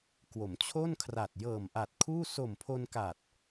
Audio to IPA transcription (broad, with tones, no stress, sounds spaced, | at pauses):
k w o˩˦ m t͡ɕʰ o˥˩ n kʰ r a˨˩ t̚ j ɤː˨˩ m ʔ a˨˩ t̚ kʰ uː˥˩ s o˨˩ m pʰ o˧ n k a˨˩ t̚